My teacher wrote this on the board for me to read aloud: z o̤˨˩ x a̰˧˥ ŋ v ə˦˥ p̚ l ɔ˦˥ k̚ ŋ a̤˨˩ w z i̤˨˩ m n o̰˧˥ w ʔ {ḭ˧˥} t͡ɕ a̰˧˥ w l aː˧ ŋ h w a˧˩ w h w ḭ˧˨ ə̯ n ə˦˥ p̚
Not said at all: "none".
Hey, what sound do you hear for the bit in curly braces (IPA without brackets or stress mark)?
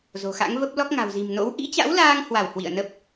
ḭ˧˥